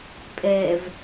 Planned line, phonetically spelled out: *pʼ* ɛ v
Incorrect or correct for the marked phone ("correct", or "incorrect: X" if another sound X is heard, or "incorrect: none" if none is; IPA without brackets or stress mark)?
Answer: correct